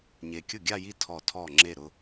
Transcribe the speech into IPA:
ɲ e˨ kʲ ʊ˥˩ ɡʲ a˥˧ j i˥˩ tʰ ɔ˥˩ tʰ ɔ˥˩ ŋ͡ǁ e˥˩ ɾ ʊ˥˧

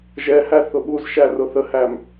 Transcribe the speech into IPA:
ʒ ɛ h æ θ ʊ ɓ u z ʃ æ r ʊ θ ə h æ m

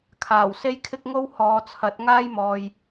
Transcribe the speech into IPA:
kʰ aː˨˩ w s e˥ j kʰ ɪ˥ k̚ ŋ o˥ w h ɔː˨˧ t͡sʰ ɐ˨˥ t̚ ŋ aː˥ j m ɔː˨ j

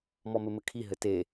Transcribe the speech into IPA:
m ɔ m ɘ m ɘ kʰ i ɦ ɘ t e

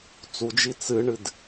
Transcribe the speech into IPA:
t͡s u d͡ʒ i t͡s ɨ ɳ ɨ d

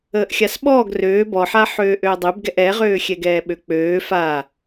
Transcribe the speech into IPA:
əː ʔ xʲ a s ɓ ɔː ɡ r øː b ɔ ħ a ħ øː ʔ øː dˤ ø b ɡ ɛ ʔ ɛ ʁ øː xʲ ɛ ɡ ɛː ɓ ø k͡p øː f a

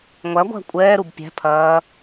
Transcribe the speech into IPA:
ŋʷ æ ɡʷ æ̤ kʷʼ ɛː ɾ u b pʲ æ̤ pʰ ɐː

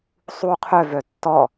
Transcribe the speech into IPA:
sˤ u qʰ œ v œ tː ɔ

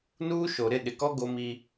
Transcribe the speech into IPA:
n uː˦ ʃ o˨ ɾ ɪ˦˨ ɗ ɪ˨ k ɔ˦ ɡ o˦ m i˦

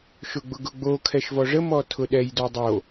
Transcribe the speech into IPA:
ʃ ʊ ɡ͡b ʊ ɡ ʊ ɡ͡b o kʰ ɛ ʃ v ɔ ʐ ə m ɔ tʰ ʊ ɗ ɛ j d o dˤ o

